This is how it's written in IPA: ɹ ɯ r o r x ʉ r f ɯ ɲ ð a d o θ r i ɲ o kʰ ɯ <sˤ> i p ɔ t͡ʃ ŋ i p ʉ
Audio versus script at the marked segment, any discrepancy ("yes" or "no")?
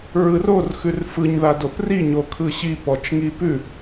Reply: yes